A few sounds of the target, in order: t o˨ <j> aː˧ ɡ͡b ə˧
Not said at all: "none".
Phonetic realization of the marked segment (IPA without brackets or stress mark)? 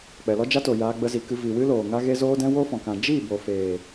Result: j